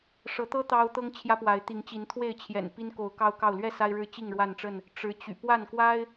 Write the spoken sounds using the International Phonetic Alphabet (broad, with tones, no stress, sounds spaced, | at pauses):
ʂ ɤ˨˦ t̪ ɤ˦ t̪ ɑ˦ ʊ̯ t̪ ɤ˦ ŋ t͡ɕʰ j ä˦ p w a˨˦ ɪ̯ t̪ i˨˦ ŋ t͡ɕ i˨˦ n t̪ʰ w e˥˨ ɪ̯ t͡ɕʰ j ɛ̰˨˩ n p i˦ n k o˨˦ ʊ̯ k ɑ˦ ʊ̯ k ɑ˥˨ ʊ̯ l ɥ ɛ˥˨ s a˦ ɪ̯ ɻ ɻ̩˦ t͡ɕ i˥˨ ŋ ɻ w a˥˨ n ʈ͡ʂ ə˥˨ n | ʈ͡ʂ ɻ̩˨˦ t͡ɕ y̰˨˩ p w a˥˨ n k w a˦ ɪ̯